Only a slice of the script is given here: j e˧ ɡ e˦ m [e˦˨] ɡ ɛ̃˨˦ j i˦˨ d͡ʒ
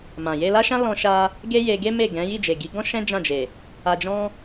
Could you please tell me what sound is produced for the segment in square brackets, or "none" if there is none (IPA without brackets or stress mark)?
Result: e˦˨